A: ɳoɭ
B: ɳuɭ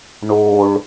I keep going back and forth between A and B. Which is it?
A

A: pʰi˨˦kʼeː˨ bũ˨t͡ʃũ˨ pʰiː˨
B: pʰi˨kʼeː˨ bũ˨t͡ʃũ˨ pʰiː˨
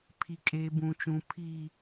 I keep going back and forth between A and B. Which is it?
B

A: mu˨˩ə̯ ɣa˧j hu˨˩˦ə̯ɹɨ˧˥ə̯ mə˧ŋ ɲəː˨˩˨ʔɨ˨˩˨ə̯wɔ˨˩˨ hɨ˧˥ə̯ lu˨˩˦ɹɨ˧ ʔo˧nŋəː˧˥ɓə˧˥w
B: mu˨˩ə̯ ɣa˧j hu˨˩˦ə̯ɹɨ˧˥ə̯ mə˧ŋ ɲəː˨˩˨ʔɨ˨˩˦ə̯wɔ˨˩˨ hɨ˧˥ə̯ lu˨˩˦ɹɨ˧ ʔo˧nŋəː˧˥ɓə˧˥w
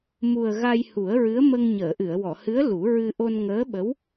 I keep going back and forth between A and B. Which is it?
A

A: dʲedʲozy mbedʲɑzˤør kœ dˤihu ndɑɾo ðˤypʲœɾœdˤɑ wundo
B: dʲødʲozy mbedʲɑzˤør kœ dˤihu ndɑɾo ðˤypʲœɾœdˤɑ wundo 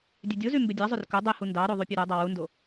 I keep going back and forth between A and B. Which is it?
B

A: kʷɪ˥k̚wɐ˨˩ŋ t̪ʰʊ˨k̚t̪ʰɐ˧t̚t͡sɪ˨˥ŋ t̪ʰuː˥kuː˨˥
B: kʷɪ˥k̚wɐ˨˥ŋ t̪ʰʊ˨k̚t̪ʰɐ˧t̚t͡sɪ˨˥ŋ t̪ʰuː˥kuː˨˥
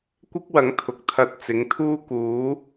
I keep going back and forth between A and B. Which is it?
B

